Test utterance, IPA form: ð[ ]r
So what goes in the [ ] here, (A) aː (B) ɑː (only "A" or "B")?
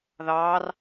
B